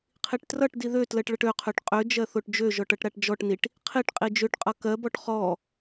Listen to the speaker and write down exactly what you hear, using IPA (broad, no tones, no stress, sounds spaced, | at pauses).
qʰ i ʈ t r ʌ ʈ d i ð ø t l ɜ ʈ ɭ ʌ ʈ ø qʰ ø ʈ qʼ ø d͡ʒ ɜ θ o ʈ d͡ʒ ø ʒ ɔ ʈ ʌ ʈ ɾ a ʈ d͡ʒ ɔ ʈ n i ʈ | qʰ i ʈ qʼ i d͡ʒ ø ʈ qʼ ʌ k ɜ b ɔ ʈ χ ɔ